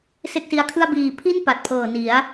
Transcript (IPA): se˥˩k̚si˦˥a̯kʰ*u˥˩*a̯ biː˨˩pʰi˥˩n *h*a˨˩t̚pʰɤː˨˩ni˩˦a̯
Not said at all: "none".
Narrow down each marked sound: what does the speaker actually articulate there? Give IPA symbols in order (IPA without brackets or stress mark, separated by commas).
ɯ˥˩, p